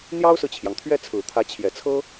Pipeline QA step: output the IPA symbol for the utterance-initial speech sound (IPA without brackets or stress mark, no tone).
n̪